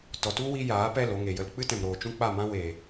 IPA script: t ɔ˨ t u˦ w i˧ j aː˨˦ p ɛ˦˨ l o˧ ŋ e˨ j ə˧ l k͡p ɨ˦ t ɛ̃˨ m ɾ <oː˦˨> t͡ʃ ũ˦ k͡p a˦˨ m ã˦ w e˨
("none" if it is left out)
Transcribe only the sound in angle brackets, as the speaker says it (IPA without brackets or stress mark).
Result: oː˨